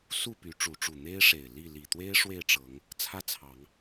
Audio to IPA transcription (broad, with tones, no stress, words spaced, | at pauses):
su˥˨ py˨˦ ʈ͡ʂu˨˦ʈ͡ʂu˨˩ n̪e˦ɪ̯ʂe˨˩ɪ̯ li˥˨ li˨˩t̪we˦ɪ̯ ʂwe˥˨ɪ̯ʈ͡ʂɤ˨˦ŋ | t͡sʰä˦t͡sʰɑ˨˦ŋ